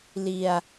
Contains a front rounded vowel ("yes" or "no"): no